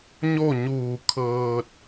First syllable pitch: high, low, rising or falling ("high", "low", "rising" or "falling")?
falling